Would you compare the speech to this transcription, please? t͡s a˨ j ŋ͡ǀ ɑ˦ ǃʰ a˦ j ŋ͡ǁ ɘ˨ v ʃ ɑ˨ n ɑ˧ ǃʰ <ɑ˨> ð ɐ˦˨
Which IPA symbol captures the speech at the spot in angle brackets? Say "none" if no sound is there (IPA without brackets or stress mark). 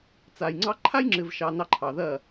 ɑ˨